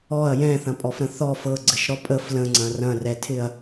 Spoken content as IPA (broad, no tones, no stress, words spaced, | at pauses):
ɔɐ̯ jɛ̃θɐ̃pʼɔfɾə̃ θɔ fɤɡ͡ǀɘʃɾɔ pʼəf lə̃ŋ͡ǀɐ̃ rɐ̃rɛtʰɪɐ̯